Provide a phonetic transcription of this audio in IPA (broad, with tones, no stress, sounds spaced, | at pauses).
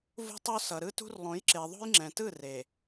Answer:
v ṳ˦ tˤ o˦ s ʌ˨ ɾ ɯ˦ t ṳ˦ r lˠ õ˨˦ j ǁ e˨ ðˤ o̤˦ j ŋ͡ǁ ɛ̃˨ t ɯ˦˨ r e˨